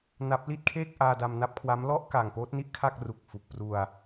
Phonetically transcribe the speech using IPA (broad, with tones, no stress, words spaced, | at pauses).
na˦˥p̚ li˥˩t̚kʰeː˥˩k̚ ʔaː˧da˧mna˦˥p̚kʰwa˦˥m lɔ˥˩ʔka˨˩ŋ poː˦˥t̚ni˥˩ʔkʰa˥˩k̚ ru˨˩k̚fu˨˩k̚pru˧a̯